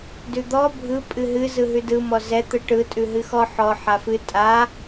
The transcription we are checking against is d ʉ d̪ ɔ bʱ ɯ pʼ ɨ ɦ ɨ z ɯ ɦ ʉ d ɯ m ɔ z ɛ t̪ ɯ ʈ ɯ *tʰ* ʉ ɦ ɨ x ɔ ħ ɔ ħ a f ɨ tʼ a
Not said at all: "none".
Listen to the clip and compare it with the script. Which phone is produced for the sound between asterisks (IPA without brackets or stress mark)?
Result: tʼ